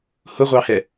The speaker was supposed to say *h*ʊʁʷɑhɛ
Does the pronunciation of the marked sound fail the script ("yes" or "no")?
no